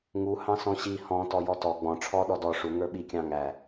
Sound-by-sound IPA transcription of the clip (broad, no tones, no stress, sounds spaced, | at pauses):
ŋ u h ɑ̃ s ɔ̃ ɕ i h ɔ̃ t ɔ j ɔ t ɔ ɡ͡b ɔ̃ ʈ͡ʂʰ ɔ ɗ ɔ d ɔ ʂ u ŋ ə˞ ɓ i kʲ ɑ̃ ŋ æ